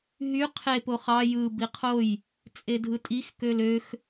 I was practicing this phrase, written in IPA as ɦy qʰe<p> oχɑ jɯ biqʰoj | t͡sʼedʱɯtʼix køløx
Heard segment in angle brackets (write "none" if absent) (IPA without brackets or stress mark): p